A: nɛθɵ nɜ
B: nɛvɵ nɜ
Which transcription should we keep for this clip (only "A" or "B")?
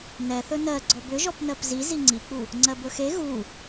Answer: A